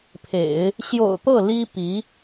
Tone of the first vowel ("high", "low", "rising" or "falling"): low